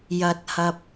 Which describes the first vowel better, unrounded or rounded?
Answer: unrounded